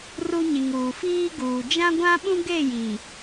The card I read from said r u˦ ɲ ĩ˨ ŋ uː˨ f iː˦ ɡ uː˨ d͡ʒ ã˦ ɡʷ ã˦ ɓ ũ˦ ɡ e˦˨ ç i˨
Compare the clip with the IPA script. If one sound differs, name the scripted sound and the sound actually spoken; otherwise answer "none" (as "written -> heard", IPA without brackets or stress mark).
ç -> j